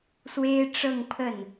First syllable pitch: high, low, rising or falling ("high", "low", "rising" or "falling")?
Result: high